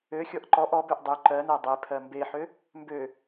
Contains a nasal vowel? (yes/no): no